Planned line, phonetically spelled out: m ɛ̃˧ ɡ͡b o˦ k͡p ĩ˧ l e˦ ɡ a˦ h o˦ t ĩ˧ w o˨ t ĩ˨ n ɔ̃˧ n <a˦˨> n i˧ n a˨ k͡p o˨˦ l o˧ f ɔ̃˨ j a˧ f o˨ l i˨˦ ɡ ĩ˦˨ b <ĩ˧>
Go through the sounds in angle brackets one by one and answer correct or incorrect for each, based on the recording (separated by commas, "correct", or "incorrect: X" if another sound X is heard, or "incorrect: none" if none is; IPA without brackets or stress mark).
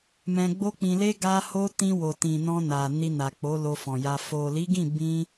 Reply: incorrect: a˨, correct